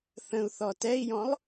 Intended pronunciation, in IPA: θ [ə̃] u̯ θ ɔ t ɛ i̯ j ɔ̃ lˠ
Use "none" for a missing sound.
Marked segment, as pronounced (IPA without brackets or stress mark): ə̃